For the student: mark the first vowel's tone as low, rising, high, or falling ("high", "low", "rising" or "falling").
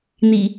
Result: low